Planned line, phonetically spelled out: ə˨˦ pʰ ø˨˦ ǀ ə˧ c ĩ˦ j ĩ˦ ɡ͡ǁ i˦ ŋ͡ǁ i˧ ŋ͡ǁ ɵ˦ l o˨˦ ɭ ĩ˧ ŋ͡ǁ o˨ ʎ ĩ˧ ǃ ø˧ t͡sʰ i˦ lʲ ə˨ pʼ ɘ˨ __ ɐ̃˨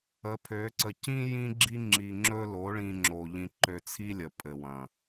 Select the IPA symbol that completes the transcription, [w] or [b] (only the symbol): w